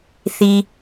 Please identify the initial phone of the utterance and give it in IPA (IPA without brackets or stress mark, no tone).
θ